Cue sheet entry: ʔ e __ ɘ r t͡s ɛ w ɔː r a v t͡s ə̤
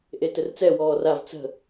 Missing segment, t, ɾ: t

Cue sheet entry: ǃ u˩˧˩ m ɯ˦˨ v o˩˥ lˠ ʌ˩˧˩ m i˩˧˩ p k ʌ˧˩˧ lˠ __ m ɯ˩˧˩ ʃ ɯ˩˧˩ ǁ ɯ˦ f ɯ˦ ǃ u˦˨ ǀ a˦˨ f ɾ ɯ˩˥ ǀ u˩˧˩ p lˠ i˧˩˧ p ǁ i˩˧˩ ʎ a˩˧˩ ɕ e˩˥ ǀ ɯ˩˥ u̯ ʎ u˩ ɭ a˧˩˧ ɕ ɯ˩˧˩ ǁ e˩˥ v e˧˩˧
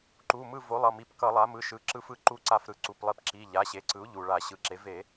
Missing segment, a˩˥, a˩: a˩˥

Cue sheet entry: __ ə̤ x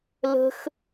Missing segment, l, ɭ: l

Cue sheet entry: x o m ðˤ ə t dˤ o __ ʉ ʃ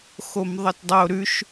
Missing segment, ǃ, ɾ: ɾ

